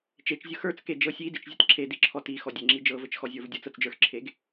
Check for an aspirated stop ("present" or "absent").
present